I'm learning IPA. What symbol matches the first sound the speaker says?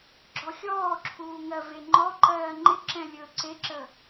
ɡ͡ǁ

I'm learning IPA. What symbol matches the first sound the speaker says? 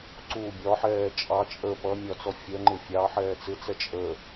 ǀ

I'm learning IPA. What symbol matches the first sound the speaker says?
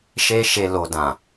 ʃ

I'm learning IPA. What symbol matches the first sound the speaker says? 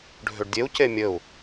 ɖʱ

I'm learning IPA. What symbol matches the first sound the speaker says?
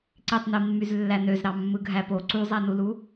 ǀ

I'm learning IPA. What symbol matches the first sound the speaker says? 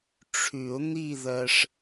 ʈ͡ʂʰ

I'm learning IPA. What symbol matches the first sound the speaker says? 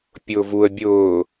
pʲ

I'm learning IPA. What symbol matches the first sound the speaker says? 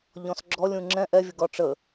ʎ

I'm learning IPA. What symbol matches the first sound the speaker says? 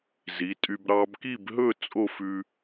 z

